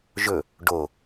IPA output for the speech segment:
ʒ ɵ | ɖ o

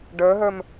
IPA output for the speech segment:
ɖ ə˞ ɦ ə˞ m

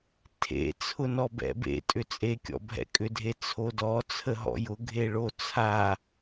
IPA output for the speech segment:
tʰ ḛ t͡sʰ ʊ n ɔ b ɛ̰ b ḛ tʼ ʏ t͡sʼ e kʲ ɔ̰ bʱ ɛ̰ kʼ ʏ dʱ e t͡sʰ o d ɔ t͡sʰ ə ɦ ɔ̰ j ʊ ɡʱ e ɭ o t͡sʰ a

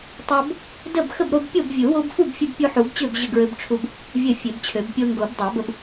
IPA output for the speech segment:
tˤ o˦ b | d ə˥˨ b x ə˥˨ b ɾ o˦ b pʲ o˥˨ b vʲ u˨˩˦ w o˦ b f u˥˨ b fʲ u˦ b pʲ u˦ ħ u˨˩˦ b t͡ɕ ø˥˨ b ʑ ə˥˨ ɡ ɹ ø˦ b ʈ͡ʂʰ u˦ b | vʲ ə˥˨ fʲ ø˨˩˦ b t͡ɕʰ ø˨˩˦ b pʲ o˦ ŋ ɡ o˨˩˦ b dˤ o˨˩˦ b ə˦ b

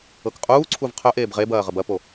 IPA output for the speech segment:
ɤ k qʼ uː ǀʰ u v qʰ œ ʔ eː b ʁ e b ɐː ʁ ə b ɐ p o

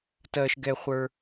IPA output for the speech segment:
t ɜ˦ ʃ ɡ ɛ˦ χʷ ə˞˦

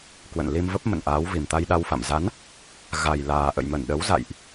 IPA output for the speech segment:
k w ə̰˧˨ n l i˧ m v ə˦˥ p̚ m ə̰˧˨ n ʔ aː˨˦ w v i˨˩ m t̪ a˧ j ɗ a˧ w f a̰˧˨ m z a˨˦ n | ɣ a˨˩ j l aː˨˩ ʔ ə̰˧˨ j m ə˧˩ n ɗ ə˨˦ w z a̰˧˨ j ʔ

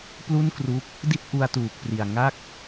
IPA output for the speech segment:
p l u˥˩ n k r u˦˥ k̚ | d i˥˩ t̚ ʔ u˧ a̯ t uː˨˩ k̚ p r i˨˩ a̯ ŋ a˥˩ k̚

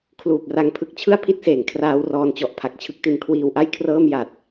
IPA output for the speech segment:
kʰ l uː˨˩ p̚ r a˧ ŋ pʰ ɯ˦˥ k̚ t͡ɕʰ ɯ˥˩ a̯ pʰ i˥˩ t̚ s eː˩˦ ŋ kʰ r aː˦˥ w r ɔː˧ n t͡ɕ ɔ˨˩ ʔ pʰ a˨˩ k̚ t͡ɕʰ ɯ˦˥ k̚ t i˧ n kʰ w iː˧ w ʔ a˥˩ j kʰ r ɤː˥˩ m j a˨˩ t̚

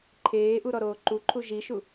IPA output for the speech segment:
ǃʰ eː ʔ u ɾ ɔ ɾ oː ǃ u ǃʰ u ʒ i ʃ u

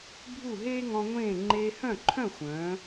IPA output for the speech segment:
bʱ u˥˩ ɦ eː˥ ŋ ɔ̃˧ ŋʷ ẽː˥˩ ŋ͡ǃ eː˧ h œ̃˥˩ ǃʰ œ̃˥˩ xʷ œ̃ː˩˥

